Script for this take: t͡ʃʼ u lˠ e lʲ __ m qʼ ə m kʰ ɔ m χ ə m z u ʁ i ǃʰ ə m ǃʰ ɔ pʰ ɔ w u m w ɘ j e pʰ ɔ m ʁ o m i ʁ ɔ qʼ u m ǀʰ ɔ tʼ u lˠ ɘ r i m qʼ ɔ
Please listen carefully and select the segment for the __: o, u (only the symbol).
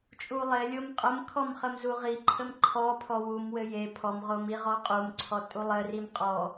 o